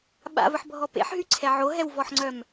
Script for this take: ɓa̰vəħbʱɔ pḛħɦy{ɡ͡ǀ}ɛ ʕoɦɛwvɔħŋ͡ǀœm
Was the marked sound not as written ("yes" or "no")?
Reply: yes